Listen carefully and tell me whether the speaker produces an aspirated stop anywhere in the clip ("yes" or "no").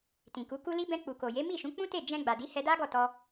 no